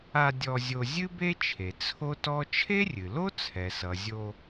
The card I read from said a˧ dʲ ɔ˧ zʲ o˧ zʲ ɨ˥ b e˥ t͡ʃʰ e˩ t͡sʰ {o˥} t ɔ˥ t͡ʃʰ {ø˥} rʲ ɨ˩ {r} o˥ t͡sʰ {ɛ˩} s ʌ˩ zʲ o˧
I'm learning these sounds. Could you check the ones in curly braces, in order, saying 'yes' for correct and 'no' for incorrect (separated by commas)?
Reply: yes, no, no, yes